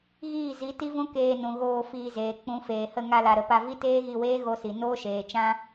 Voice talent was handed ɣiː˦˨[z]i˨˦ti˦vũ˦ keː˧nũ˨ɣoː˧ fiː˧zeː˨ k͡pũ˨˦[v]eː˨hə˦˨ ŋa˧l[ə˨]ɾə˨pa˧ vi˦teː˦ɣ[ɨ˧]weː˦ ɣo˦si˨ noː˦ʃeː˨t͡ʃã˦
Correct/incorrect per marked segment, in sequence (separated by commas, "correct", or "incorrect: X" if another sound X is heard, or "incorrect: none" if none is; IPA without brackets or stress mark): correct, incorrect: f, incorrect: a˨, incorrect: i˧